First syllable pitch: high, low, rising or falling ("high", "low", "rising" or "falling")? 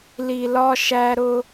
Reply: low